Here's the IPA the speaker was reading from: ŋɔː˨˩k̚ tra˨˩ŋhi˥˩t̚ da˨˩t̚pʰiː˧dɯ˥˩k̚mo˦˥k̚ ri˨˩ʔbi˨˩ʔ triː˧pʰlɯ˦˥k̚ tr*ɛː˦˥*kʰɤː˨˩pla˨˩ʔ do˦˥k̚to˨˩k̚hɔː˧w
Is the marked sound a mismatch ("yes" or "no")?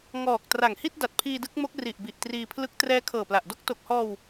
no